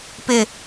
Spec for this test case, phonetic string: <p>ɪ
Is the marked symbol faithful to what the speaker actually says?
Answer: yes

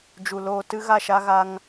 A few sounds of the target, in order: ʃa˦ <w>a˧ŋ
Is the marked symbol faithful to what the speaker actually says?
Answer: no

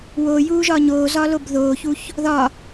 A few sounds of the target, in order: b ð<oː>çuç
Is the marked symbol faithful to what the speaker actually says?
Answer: yes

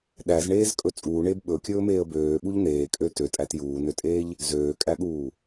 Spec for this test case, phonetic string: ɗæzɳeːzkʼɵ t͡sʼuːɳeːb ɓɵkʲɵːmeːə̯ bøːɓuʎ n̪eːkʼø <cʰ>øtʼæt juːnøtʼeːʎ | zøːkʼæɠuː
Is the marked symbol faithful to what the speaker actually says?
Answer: no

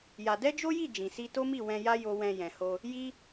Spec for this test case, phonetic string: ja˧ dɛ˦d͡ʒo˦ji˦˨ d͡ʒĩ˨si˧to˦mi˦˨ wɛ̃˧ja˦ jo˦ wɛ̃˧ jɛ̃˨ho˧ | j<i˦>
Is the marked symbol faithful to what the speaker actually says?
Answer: yes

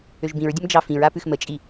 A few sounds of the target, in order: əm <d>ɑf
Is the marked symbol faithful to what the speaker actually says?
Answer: no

